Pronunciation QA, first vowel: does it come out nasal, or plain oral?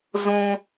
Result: nasal